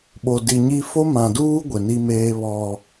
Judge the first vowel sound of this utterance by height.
mid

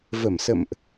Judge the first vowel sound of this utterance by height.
mid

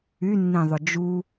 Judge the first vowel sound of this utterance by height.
high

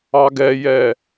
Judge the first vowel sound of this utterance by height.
low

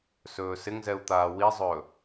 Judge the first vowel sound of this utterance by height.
mid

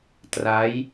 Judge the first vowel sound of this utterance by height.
low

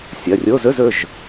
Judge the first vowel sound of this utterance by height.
low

